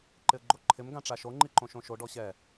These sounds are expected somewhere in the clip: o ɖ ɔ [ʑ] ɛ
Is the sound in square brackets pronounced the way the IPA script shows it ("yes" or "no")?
no